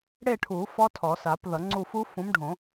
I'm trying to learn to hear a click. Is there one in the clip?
yes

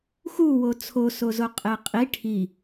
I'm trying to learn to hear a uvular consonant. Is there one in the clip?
yes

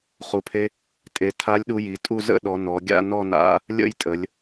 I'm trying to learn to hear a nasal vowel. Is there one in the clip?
no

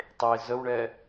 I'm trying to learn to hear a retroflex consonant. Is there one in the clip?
yes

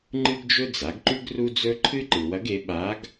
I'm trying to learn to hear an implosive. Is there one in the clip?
yes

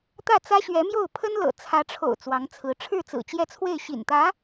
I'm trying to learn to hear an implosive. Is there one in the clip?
no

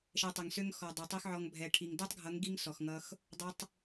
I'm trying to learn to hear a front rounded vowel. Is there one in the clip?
yes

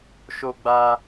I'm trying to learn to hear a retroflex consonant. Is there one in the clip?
no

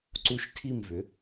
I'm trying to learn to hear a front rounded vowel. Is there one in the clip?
yes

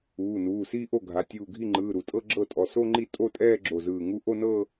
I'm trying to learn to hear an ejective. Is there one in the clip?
yes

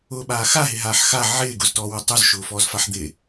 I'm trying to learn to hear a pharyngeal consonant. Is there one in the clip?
yes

